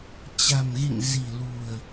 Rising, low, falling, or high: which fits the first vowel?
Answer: low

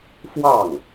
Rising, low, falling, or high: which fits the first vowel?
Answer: falling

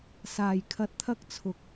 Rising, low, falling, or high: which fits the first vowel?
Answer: low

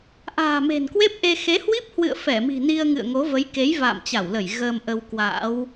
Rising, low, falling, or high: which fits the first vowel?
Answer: low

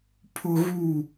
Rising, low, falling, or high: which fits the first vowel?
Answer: high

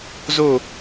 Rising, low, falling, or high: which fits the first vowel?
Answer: falling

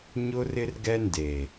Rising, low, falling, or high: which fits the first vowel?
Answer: high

